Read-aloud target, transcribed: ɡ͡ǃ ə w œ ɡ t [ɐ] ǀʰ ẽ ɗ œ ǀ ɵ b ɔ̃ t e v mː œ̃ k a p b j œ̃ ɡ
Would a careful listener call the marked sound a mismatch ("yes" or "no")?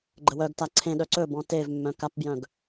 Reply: yes